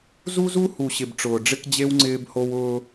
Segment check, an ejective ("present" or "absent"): absent